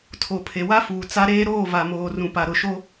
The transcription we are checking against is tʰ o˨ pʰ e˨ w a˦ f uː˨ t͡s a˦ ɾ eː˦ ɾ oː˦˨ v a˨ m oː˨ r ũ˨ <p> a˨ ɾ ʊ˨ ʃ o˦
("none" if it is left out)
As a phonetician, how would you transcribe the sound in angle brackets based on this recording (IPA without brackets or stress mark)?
p